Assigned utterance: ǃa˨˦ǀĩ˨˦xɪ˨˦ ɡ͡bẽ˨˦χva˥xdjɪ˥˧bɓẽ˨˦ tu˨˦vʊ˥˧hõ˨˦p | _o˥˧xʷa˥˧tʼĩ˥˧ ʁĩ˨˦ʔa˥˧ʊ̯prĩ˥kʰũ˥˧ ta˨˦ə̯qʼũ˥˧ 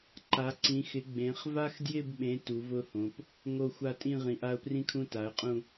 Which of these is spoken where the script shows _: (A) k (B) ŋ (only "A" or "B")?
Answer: B